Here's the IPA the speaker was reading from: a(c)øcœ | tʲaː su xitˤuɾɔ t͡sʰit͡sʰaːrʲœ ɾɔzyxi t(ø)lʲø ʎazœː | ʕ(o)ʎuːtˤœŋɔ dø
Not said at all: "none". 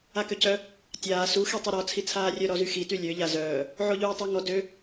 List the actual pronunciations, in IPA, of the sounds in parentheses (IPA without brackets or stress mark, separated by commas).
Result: k, y, o